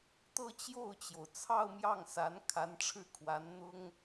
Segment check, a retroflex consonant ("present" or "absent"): present